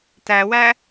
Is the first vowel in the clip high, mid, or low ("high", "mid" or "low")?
low